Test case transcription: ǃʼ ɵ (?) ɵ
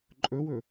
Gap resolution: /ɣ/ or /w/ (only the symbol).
w